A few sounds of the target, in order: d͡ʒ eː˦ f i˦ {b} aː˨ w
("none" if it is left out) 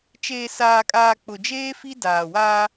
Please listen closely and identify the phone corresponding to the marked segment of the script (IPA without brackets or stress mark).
d